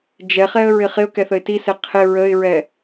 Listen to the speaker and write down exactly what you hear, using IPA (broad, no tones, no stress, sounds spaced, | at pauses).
d͡ʒ ɛ χ ɛ ə̯ ɹ ɪ χ ɪ ʊ̯ k ɛ θ ə ɪ̯ t i s e qʰ ɪ ɹ ə ɪ̯ ɹ ɛ